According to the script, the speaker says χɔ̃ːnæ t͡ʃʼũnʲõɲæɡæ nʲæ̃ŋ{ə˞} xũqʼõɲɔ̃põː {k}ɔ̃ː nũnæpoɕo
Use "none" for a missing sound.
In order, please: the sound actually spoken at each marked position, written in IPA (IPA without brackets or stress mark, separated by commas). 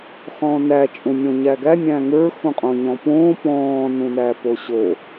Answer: ə˞, p